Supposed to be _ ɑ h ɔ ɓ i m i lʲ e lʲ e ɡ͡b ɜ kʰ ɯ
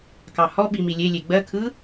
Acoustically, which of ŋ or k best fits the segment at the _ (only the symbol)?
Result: k